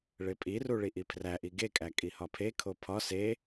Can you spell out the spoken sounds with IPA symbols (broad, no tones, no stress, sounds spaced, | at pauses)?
ɭ e pʼ i r u ɭ i ʔ i pʰ r æ ʔ i ɡ e kʼ æ kʼ i h ɒ pʰ e kʰ o pʰ ɒ s e